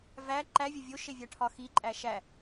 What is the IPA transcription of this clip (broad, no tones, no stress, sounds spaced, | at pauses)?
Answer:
v æ ǃ æ vʲ ɒ vʲ o ʃ e vʲ æ ʈʰ ɒ x i ǃʼ æ ʃ æ